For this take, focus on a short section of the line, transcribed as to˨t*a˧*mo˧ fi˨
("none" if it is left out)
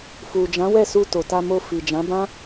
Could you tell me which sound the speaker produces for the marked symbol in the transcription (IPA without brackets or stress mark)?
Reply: a˧